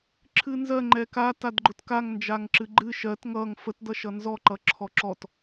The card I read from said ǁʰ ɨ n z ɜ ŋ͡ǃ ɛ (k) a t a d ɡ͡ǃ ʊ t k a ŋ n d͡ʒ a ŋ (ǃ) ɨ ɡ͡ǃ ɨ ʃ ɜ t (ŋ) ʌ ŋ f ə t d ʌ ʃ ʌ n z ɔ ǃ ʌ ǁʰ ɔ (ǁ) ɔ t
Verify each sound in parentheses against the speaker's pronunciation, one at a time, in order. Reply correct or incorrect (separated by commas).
correct, incorrect, correct, correct